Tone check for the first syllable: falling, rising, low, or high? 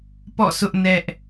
falling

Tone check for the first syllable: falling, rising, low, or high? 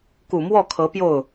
low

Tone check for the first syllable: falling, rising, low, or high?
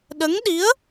rising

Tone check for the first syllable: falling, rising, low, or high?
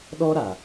high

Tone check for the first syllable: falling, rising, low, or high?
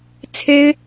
high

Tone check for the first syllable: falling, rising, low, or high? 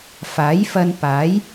rising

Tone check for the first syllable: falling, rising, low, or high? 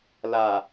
low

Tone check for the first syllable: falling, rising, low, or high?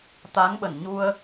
rising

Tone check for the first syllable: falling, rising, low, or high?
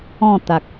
falling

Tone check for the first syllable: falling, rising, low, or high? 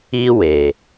high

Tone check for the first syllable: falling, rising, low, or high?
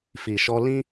low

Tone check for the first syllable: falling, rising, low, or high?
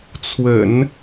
low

